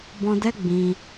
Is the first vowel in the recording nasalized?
yes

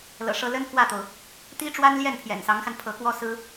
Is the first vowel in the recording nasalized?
no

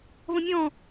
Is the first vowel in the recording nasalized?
yes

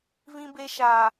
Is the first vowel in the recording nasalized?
yes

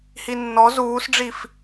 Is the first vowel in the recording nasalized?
no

